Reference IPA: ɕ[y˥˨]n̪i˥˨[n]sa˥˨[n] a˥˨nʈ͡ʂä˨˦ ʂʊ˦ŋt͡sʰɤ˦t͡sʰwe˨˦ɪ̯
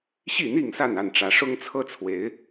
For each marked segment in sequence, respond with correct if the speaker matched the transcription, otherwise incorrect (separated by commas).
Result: incorrect, incorrect, correct